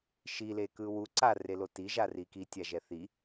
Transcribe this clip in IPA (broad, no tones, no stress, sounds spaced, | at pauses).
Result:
ʃ i l e k ɯ w u ǀ a r e l o t i ʒ a r i k i tʲ a ʒ ɛ θ i